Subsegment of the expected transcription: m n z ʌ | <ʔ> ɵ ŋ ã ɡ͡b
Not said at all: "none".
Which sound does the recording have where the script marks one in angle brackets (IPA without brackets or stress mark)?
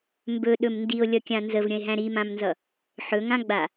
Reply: ħ